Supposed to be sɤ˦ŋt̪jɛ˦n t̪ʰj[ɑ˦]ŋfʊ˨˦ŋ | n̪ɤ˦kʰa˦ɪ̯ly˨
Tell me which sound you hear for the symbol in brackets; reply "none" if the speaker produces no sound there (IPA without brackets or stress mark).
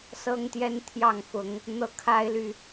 ɑ˥˨